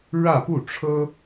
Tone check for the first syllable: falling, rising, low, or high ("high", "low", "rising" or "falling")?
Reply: falling